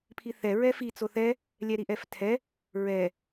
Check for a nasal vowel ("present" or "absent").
absent